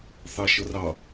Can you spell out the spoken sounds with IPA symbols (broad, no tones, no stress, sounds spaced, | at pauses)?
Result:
θ ɑ ʃ ɤ r ɑ